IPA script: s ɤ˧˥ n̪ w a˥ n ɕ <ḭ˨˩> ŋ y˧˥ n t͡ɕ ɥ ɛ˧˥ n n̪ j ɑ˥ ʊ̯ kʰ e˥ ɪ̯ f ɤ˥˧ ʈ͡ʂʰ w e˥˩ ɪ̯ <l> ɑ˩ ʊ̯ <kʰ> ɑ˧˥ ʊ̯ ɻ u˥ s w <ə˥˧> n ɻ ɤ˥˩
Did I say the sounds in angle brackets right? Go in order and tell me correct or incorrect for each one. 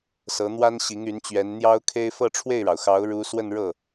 incorrect: i˧˥, incorrect: ɻ, incorrect: x, correct

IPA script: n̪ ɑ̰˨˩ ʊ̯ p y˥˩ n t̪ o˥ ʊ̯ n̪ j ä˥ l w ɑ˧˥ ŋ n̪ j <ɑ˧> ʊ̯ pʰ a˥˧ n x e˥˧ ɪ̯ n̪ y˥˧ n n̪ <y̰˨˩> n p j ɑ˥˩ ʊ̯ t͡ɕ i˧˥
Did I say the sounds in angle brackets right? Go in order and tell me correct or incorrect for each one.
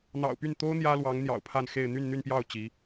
incorrect: ɑ̰˨˩, incorrect: y˥˧

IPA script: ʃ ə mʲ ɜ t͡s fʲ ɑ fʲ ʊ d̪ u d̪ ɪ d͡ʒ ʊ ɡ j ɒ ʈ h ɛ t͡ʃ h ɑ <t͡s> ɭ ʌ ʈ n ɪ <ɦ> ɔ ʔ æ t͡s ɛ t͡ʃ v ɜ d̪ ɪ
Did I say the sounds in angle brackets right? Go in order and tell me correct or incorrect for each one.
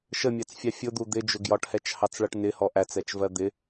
correct, incorrect: h

